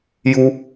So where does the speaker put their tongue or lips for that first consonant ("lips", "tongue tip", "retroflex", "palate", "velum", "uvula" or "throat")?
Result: palate